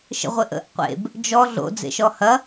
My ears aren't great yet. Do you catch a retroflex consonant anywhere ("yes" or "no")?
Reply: no